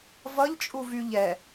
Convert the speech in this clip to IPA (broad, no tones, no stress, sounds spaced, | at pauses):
v ʌ ʎ t͡ʃʼ u v y ʎ ɛ